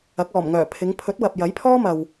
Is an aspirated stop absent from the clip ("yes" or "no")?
no